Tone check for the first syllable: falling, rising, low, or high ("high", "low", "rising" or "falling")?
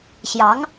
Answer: rising